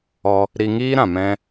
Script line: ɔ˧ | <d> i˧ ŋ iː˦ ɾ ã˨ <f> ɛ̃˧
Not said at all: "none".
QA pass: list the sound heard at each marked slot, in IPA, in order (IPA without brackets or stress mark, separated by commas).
ɾ, m